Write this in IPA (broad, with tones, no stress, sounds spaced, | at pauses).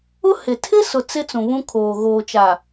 ʊ˦ h ɪ˨ tʰ ɪ˦ s ʊ˨ t͡s ɪ˦ t͡s ũ˨ β ũ˦ kʰ oː˨ ɣ oː˨ t͡ʃ a˨